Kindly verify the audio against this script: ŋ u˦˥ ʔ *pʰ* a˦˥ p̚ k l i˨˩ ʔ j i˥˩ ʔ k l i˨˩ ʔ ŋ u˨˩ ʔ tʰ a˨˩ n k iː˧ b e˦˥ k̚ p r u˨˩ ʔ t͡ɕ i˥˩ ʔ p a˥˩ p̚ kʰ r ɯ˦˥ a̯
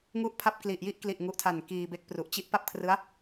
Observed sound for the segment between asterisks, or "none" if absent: pʰ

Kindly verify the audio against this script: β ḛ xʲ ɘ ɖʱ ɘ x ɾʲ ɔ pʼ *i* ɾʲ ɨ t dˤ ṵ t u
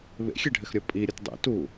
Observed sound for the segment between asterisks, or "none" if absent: i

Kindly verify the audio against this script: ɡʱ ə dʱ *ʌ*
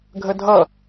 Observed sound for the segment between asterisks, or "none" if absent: ʌ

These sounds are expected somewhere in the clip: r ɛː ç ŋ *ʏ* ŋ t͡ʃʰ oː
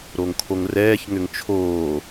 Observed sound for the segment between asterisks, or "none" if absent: ʏ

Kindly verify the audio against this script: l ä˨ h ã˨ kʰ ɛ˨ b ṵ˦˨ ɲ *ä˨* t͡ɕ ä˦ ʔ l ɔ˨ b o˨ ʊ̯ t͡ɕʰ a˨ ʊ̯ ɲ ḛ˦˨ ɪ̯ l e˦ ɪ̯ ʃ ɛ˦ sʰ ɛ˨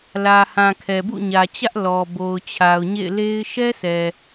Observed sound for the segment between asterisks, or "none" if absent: ä˨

